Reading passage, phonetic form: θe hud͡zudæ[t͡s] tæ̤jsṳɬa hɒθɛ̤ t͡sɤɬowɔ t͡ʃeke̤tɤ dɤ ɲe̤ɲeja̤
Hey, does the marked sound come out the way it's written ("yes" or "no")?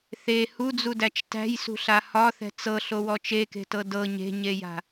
no